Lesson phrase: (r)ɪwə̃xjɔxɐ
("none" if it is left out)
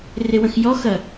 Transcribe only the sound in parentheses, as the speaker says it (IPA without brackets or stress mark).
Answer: r